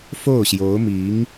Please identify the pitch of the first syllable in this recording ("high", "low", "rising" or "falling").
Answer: falling